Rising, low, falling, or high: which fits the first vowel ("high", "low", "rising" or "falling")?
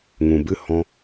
low